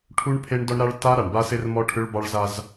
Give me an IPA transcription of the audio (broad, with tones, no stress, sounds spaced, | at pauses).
ʈʰ u˦ ɳ pʰ e˦ ɳ d ɔ˦ ɳ ɾ a˦ ɭ t a˦ ɾ a˨ ɳ b a˦ s e˦ r m ɔ˦ ʈʰ ʏ˦ ɭ b ɑ˦ ɭ z a˦ z